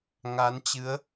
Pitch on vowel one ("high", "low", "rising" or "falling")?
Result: rising